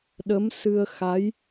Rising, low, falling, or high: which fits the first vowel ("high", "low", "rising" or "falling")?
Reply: rising